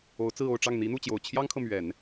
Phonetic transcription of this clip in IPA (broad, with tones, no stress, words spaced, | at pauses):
o˧˥ʊ̯t͡sɹ̩˥˧o˥˧ʊ̯ʈ͡ʂɑ˥˩ŋ n̪i˧˥n̪u˥˩t͡ɕjo˨˩ʊ̯ t͡ɕʰjɑ˥ŋkʰɤ˨ mɥɛ˨˩˦n